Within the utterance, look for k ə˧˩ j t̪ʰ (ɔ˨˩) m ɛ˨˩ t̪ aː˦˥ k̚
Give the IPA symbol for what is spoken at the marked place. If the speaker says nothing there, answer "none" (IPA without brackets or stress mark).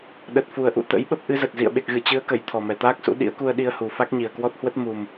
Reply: ɔ˨˩